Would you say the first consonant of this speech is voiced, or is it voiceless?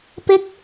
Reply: voiceless